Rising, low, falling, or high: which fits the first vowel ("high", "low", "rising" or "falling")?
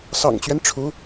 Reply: low